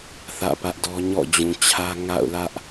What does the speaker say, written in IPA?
θä̰˦˨pä˦ʔdɔ˦ ɲɔ̰˦˨d͡ʑũ˨t͡ɕʰä˦ ŋa̰˦˨ʊ̯lä˦ʔ

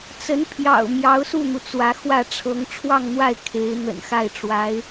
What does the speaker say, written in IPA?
t͡sə˧˥npʰjɑ̰˨˩ʊ̯ mjɑ˧˥ʊ̯su˥˩n̪u˩ t͡swä˧˥xwä˥˩ʈ͡ʂʰɤ˧˥ŋ ʈ͡ʂʰwɑ˥˧ŋn̪wa˥˩ɪ̯ kʰe˧˥ɪ̯ n̪ə̰˨˩nxa˥˩ɪ̯ʈ͡ʂwa˧˥ɪ̯

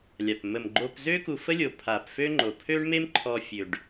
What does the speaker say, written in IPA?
lʲa˨p mə˨mɡ͡ǃo˧pzø˦ ku˧fə˦ lʲo˨ pʰa˨pfø˦ŋ͡ǃo˨ pʰø˦ɳme˦m ǃʰɔ˧fʲø˨ɖ

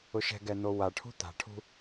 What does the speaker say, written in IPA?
ʊʃɛ̤ɡɛ n̪owaʈʰṳ t̪a̤ʈʰṳ

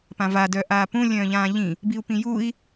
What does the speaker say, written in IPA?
pãva dœːʔaːpũ lʲœ̃ːʎãːʎĩ | biu̯pĩjui̯

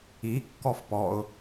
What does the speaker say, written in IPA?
i kːɔfpɔʊ̯

